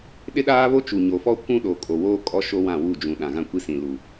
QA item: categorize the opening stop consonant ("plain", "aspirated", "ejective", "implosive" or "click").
implosive